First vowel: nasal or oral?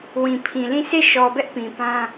nasal